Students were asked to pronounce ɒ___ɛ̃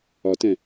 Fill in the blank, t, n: t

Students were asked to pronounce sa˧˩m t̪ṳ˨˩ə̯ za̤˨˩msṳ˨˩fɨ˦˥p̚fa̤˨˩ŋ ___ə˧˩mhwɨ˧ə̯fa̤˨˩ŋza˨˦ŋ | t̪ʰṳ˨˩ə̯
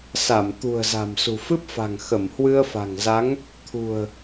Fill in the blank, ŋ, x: x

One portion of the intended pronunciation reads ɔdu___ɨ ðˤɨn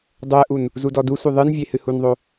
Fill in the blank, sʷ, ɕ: sʷ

